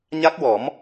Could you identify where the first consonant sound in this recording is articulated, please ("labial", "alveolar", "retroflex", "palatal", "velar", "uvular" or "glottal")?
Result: palatal